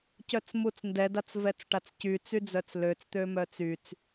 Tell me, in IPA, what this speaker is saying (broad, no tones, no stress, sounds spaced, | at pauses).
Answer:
c œ t͡s m u t͡s n d ɛ d a t͡s v ɛ t͡s ʈ a t͡s c y t͡s y d͡z œ t͡s l ø t͡s t̪ ø m œ t͡s y t͡s